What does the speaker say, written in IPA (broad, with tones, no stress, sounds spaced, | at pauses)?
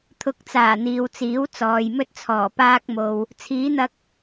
t̪ʰ ʊ˨˥ k̚ t͡s aː˨˩ n̪ iː˨ w t͡s iː˨˥ w t͡s ɔː˨ j m ɵ˥ t̚ t͡sʰ ɔː˨˩ p aː˥ k̚ m o˧ w | t͡sʰ iː˨˥ n̪ ɐ˧ k̚